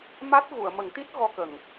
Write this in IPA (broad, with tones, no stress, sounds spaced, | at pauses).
m a˦˥ t̚ ɣ u˨˩˨ ə̯ m ə˨˩˦ ŋ t̪ i˦˥ t̚ ɣ ɔ˧ k ə˨˩ ŋ